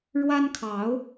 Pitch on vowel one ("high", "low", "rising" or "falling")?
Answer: high